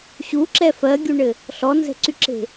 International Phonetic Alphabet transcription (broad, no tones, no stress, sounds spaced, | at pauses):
ɕ u ǁ ɛ f ɜ ɡʲ u ɳ ɘ | ɬ ɔ n z ɛ̤ ǀ y ǁ e̤